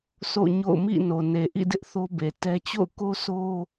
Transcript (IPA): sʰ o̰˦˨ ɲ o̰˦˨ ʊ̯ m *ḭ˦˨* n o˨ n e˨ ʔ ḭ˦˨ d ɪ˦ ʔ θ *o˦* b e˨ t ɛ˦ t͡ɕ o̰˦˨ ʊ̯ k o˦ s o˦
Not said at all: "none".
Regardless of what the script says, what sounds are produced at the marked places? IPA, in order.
ḭ˦˨, o˦

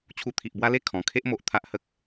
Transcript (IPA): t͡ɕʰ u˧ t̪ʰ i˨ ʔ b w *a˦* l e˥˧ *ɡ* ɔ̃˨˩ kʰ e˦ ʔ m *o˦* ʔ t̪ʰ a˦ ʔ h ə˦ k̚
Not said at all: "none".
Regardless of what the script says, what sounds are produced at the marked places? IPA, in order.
a˦, kʰ, o˨

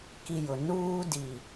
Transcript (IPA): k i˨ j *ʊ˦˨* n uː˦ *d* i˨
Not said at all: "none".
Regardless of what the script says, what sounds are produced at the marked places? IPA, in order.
ʊ˨, d

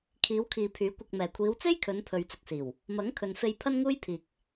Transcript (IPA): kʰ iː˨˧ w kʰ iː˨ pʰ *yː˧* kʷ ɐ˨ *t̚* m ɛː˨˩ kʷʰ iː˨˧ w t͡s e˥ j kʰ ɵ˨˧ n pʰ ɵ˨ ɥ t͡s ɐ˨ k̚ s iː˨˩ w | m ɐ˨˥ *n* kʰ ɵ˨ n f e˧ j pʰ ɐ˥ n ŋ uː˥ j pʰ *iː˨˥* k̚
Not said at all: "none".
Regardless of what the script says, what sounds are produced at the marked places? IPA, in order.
yː˨˥, k̚, ŋ, iː˨

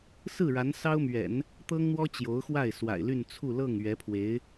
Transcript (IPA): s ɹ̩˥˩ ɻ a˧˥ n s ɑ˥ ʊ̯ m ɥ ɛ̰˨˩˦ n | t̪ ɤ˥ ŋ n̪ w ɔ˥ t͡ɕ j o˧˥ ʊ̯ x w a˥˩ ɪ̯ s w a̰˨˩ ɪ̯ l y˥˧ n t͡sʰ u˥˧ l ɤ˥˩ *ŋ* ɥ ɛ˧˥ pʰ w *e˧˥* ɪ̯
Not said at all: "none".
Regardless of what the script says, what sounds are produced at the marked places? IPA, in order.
ŋ, e˧˥

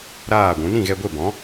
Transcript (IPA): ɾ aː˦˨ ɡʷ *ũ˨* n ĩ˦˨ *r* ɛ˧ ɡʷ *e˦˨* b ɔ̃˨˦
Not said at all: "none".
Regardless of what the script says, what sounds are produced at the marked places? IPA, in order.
ũ˨˦, ɣ, e˦˨

